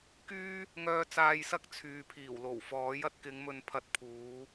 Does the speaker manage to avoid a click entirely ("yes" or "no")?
yes